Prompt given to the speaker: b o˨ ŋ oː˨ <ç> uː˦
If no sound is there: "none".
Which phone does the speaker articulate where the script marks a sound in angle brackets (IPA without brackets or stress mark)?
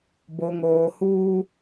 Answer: h